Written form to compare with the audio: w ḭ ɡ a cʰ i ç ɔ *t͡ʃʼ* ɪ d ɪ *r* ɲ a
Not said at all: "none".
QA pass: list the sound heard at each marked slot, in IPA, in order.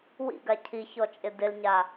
t͡ʃʼ, l

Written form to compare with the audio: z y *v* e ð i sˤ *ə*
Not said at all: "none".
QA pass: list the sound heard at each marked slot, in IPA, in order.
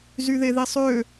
ð, ø

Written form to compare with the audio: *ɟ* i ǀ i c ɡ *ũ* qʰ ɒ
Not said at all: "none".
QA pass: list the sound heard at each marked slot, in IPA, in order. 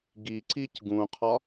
ɡ, ũ

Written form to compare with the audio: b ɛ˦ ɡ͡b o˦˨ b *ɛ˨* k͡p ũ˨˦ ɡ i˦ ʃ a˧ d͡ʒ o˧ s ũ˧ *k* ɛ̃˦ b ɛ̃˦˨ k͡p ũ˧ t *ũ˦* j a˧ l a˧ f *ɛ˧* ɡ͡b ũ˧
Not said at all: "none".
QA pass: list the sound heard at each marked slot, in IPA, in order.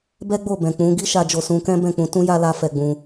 ɛ̃˨, k, ũ˦, ɛ˧

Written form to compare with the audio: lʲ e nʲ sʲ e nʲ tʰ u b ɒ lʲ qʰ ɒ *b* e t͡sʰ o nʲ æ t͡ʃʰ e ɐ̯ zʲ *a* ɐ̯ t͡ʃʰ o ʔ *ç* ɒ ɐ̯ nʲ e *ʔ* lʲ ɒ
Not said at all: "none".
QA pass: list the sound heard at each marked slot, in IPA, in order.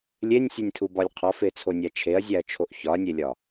f, æ, ç, none

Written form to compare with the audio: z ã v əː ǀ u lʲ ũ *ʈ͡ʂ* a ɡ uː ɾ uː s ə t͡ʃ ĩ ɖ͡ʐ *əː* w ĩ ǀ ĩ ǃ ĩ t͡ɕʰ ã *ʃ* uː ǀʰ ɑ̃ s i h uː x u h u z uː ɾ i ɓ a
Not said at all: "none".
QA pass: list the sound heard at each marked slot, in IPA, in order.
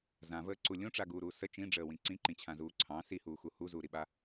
ʈ͡ʂ, əː, z

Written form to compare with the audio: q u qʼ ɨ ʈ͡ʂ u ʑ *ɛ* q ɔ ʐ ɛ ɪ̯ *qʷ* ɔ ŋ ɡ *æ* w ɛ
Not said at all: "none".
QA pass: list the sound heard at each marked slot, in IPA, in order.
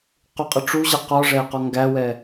ɛ, q, æ

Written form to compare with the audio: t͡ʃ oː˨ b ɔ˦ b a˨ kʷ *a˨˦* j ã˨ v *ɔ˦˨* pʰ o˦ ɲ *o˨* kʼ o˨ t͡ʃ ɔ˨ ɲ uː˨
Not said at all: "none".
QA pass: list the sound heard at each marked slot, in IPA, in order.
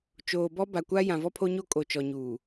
a˦, ɔ˦, o˦

